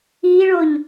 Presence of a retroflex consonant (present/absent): present